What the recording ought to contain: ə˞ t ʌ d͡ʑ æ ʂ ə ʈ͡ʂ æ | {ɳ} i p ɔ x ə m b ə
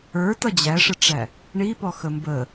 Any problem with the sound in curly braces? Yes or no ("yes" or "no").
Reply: no